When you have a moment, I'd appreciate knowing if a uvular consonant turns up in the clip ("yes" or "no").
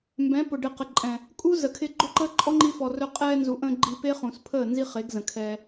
yes